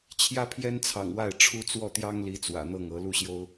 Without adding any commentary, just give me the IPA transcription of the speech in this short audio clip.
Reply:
t͡ɕʰjä˥pʰjɛ˥n t͡sʰɑ̰˨˩ŋwa˥˩ɪ̯ ʈ͡ʂʰu˥t͡swɔ˥˩t̪jɑ˥ŋli˧˥ t͡swä̰˨˩n̪ɤ˥˩ŋɤ˧˥ lu˥˩ɕjo˥ʊ̯

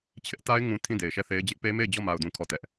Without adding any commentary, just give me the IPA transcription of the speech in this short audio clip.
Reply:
t͡ɕʰɪ˦ʔta˦ɪ̯ŋũ˨ tʰĩ˦˨de˨ɪ̯ʃɛ˦˨θe˦ɪ̯ d͡ʑɪ˦ʔpe˦me˦˨ɪ̯ d͡ʑɔ˦˨ma˨ʊ̯dũ˨ kʰɔ˦˨tɛ˦ʔ

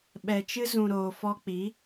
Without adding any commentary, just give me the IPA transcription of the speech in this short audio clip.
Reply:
ɓɛ˨t͡ʃɨ˧zũ˨ ɾoː˨fɔ˧k͡pi˨˦

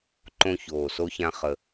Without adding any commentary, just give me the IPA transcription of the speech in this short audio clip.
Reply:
ǃõ˦çoː˨˩so˦çã˦ χə˨˩

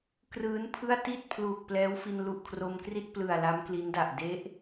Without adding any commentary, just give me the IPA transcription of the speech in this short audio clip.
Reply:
krɯː˦˥npʰɯ˥˩a̯ ti˥˩t̚ pʰluː˨˩k̚plɛː˦˥wfi˧n lu˨˩ʔkʰro˧mkri˥˩t̚ plɯ˨˩a̯ la˦˥mkli˦˥nda˨˩ʔ de˦˥ʔ

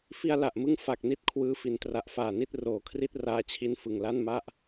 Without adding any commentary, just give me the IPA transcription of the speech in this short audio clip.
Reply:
fi˧a̯la˨˩ʔmɯ˧ŋ fa˨˩k̚ni˥˩t̚kʰwɯː˦˥ fi˩˦ntra˨˩ʔfaː˨˩ni˦˥t̚ roː˨˩kʰri˥˩t̚raː˧t͡ɕʰi˧n fɯ˨˩ŋ la˥˩nma˥˩ʔ

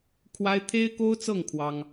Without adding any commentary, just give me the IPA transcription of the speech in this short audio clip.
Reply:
kʰwa˥ɪ̯ t̪ʰe˥ɪ̯ko˥ʊ̯t͡sɤ˥˩ŋ kʰwɑ˥ŋ

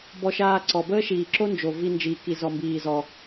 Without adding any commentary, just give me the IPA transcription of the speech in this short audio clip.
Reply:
bɔ˧ʃaː˧ǀɔ˨ bəː˦ʃiː˨ǁo˦nd͡ʒo˨ vi˦ nd͡ʒiː˧ki˧ zɔ˧mbiː˧zɔ˧

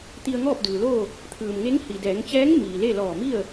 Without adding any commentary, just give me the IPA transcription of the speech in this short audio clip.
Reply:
t̪i˧ə̯ŋɔː˥˨p̚dɯː˩loː˥˨ | t̪ʰɯː˩mŋe˧˥ŋ hi˩dɛː˩˧ŋt͡ɕɛː˧˥ŋ miː˩le˥˨ lɔː˧˩mi˥˨ə̯

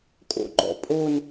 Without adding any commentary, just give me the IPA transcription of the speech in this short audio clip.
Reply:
kʼo̰ɡ͡ǃɔ̰pʼon

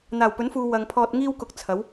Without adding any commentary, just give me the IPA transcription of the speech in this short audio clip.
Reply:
n̪aː˨˩wpɵ˨˥nfuː˨ wɐ˨ŋpʰɔː˧t̚ ŋiː˥wkʊ˧k̚ t͡sʰɐ˨˥w

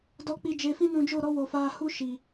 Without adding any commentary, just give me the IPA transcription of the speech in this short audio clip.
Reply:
dɔ˧k͡pi˧ d͡ʒe˧fĩ˦nũ˧d͡ʒo˦˨ ɾɔ˦wo˨faː˧ hu˦ʃi˨

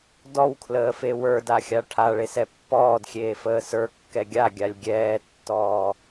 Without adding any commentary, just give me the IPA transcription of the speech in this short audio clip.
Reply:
dɔwkʰləːfe wə˞daxʲa ʈʰaɭesɛ pːɔːdxʲeːfəː sə˞kːɛ ɡʲaɡʲalʲ ɡʲɛːtːɔː

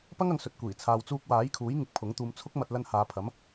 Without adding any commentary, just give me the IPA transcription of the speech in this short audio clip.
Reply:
pɐ˥ŋɐ˨ŋ sɵ˨t̚ kʷiː˨˩ t͡sʰaː˨wt͡suː˧k̚waː˨˥jkʰuː˨˥j ŋɪ˧k̚pʰʊ˨˥ŋt̪uː˧m t͡sʰʊ˥k̚mɐ˧t̚ lɐ˧nhaː˨˧pʰɐ˨˥m

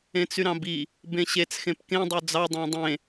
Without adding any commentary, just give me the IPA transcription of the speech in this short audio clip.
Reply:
ẽt͡syɾɑ̃bi | bẽɕet͡s xẽpkẽ dˤød͡zɑ dˤɑ̃dˤẽ

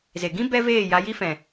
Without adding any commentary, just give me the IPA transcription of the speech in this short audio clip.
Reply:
ze˨ɡĩ˦ bɛ˦veː˦˨ ja˧ji˦fɛ̃˨

